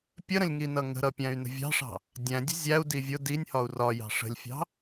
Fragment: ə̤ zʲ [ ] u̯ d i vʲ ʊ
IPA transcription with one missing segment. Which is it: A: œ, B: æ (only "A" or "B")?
B